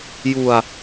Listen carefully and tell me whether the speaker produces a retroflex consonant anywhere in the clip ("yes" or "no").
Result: no